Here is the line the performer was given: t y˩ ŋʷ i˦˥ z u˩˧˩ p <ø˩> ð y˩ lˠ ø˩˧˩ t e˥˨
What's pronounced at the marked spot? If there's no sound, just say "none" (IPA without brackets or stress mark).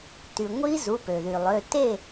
ø˩